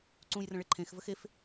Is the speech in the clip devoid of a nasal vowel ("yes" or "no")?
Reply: no